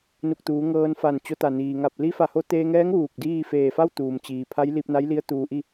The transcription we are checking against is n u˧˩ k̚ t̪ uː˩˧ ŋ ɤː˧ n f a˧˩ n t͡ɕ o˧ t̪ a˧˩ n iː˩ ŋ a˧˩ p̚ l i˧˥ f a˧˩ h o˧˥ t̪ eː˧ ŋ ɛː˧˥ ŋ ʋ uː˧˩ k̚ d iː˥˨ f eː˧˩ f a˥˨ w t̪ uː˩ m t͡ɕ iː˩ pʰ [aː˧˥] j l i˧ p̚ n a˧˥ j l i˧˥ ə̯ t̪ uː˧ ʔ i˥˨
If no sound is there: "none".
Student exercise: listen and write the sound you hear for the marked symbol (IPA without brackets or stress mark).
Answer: a˧˥